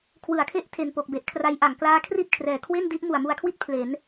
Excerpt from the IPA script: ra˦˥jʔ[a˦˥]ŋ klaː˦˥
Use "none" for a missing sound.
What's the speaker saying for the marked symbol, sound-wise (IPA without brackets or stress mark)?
a˩˦